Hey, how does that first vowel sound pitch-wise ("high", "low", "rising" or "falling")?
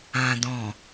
low